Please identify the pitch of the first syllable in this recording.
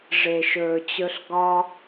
low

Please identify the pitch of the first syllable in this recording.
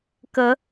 rising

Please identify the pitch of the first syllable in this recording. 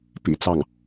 low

